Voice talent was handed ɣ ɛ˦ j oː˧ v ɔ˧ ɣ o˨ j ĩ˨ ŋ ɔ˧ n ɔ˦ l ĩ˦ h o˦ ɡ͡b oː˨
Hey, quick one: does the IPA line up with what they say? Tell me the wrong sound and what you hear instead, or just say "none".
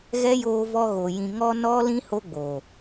none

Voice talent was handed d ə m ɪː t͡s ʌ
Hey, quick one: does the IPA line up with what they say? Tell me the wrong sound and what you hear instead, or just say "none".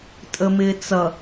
d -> tʼ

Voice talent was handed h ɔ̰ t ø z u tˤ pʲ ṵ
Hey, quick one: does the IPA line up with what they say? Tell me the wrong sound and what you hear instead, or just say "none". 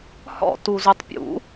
ø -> u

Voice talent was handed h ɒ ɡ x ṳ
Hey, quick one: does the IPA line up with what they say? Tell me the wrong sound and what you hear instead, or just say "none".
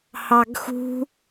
ɒ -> ɑ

